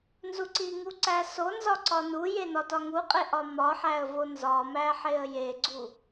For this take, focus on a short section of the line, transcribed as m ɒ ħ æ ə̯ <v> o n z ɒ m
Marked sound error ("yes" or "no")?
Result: no